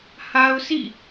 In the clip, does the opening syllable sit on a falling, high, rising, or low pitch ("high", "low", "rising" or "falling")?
high